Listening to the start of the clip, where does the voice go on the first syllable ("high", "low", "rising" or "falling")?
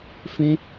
high